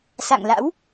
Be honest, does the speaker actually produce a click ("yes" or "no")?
no